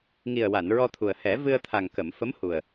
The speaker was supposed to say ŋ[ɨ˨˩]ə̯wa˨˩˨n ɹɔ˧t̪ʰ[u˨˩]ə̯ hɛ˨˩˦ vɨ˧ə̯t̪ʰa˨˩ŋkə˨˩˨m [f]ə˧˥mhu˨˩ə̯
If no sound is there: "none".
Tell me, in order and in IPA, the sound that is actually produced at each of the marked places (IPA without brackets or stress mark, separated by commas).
i˨˩, u˨˩, f